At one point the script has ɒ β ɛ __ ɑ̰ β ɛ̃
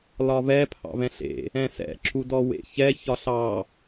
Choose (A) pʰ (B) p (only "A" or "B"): A